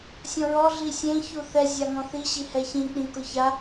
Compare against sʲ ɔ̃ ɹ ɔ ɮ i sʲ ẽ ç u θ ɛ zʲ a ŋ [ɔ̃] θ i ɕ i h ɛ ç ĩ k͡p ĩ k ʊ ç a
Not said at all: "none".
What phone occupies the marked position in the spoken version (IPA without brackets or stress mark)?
ɔ̃